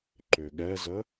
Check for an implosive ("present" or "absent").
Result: present